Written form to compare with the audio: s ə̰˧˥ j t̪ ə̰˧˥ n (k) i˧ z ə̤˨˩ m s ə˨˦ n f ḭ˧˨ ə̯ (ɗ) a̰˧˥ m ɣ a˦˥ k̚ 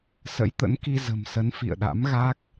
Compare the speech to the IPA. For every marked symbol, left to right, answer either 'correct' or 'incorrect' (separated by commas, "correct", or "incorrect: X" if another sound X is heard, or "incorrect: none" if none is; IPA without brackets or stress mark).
correct, correct